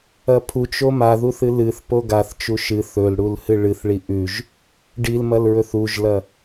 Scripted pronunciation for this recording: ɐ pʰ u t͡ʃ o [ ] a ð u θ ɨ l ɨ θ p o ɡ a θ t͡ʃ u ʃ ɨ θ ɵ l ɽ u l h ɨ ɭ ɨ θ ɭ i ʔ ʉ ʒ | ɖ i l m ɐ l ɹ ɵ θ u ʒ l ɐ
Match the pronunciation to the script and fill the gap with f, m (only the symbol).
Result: m